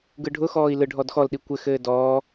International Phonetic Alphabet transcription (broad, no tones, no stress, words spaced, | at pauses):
ɡɯɖʱʊxɔːi̯ lɯɖʱɔdxɔlɗi kʷɘxɘː dɔː